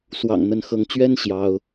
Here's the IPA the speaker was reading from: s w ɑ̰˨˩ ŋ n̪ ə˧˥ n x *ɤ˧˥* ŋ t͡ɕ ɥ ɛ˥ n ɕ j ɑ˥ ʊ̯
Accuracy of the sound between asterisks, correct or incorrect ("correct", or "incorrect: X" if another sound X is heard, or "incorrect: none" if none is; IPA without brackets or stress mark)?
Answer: correct